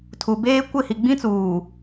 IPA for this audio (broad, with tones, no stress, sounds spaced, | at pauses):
tʰ u˨ b eː˦ kʷ ɪ˦˨ h i˨ ɡ͡b ĩ˦ t͡s uː˨